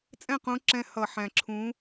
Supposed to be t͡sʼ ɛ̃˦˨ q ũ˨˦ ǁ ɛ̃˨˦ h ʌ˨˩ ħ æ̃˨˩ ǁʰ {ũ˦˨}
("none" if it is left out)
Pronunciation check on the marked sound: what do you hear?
ũ˨˦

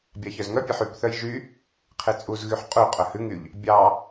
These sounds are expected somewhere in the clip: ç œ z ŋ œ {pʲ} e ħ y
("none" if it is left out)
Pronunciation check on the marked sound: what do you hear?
pʲ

